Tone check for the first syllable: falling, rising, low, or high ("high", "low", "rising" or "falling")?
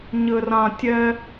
low